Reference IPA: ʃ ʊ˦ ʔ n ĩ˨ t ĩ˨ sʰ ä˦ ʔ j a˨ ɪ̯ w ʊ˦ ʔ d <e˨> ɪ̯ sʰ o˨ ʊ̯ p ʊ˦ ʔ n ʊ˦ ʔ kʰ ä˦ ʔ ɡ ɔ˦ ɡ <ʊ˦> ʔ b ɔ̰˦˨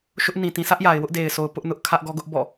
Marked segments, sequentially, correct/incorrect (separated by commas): correct, correct